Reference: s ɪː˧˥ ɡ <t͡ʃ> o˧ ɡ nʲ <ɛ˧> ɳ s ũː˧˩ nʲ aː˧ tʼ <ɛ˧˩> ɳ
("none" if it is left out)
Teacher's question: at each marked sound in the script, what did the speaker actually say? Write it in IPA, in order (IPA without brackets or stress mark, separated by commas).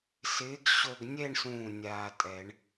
ɕ, ɛ˥˧, ɛ˨˩˦